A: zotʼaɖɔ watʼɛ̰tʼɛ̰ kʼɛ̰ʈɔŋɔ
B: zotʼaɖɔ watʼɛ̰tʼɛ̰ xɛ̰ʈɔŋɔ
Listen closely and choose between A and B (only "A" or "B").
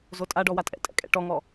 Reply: A